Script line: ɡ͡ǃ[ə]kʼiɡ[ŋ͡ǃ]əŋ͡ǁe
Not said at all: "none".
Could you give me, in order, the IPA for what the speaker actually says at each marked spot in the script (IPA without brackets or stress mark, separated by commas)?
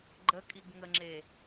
ə, ŋ